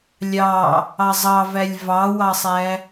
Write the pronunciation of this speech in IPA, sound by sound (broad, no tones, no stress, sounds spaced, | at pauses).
lʲ ɑ | ɑ zˤ ɑ v æ lʲ v ɑ w ɑ sˤ æ